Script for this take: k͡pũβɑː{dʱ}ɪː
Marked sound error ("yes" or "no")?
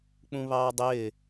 yes